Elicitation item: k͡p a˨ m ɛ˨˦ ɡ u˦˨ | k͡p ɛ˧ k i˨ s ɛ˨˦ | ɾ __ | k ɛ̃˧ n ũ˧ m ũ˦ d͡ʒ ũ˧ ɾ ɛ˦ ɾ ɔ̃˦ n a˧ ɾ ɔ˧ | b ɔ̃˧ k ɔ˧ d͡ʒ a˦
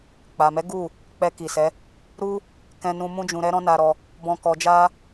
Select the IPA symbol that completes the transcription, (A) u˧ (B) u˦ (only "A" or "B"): B